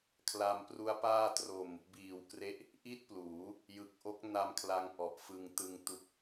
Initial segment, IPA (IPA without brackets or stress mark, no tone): kʰ